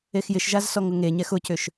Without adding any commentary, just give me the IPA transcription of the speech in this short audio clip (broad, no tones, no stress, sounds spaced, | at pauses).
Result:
e x j ɪ ʃ ʒ a z s ɔ ŋ ʊ ŋ e ɲ ɛ x ʊ c ʏ ʃ